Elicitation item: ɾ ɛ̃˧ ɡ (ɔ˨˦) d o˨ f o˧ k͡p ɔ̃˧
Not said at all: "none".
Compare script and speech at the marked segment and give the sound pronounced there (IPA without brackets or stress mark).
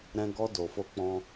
ɔ˧